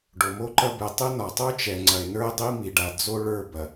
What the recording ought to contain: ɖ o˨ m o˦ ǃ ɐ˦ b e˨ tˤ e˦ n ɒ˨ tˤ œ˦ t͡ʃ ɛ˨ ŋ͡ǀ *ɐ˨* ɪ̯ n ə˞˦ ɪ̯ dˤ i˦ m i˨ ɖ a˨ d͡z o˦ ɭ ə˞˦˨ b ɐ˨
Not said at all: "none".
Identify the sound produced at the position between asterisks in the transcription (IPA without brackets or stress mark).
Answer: ɐ˨